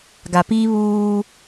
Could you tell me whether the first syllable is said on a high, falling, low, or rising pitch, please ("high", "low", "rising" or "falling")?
low